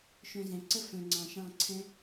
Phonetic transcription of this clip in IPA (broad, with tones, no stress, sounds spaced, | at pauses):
ʃ œ̃˧ z ɛ̃˨ ǀ ə˦ f œ̃˨ ŋ͡ǀ ɑ̃˨ ʃ ɑ̃˦˨ ǀʰ ɛ̃˦